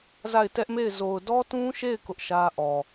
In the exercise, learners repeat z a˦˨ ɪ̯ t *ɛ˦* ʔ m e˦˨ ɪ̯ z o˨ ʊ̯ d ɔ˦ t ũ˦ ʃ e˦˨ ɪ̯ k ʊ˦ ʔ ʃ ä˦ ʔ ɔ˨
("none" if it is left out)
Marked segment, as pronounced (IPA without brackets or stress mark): ɛ˦